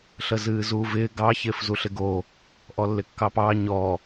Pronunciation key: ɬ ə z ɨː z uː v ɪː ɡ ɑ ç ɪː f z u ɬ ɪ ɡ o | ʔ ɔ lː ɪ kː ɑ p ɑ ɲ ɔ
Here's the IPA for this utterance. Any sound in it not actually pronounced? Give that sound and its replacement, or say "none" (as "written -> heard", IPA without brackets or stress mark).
none